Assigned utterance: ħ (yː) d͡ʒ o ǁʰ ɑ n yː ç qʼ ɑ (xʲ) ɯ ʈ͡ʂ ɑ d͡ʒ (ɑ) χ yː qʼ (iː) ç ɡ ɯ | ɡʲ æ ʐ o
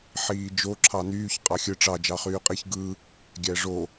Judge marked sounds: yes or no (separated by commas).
no, yes, yes, no